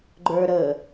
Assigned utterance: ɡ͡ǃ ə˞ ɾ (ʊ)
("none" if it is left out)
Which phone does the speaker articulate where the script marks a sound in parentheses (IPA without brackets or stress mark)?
ə